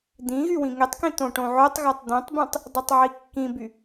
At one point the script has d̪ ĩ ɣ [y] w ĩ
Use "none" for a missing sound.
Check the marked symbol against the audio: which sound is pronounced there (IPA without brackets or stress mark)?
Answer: y